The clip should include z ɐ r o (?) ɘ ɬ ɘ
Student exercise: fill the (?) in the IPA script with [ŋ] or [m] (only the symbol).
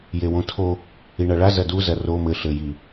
m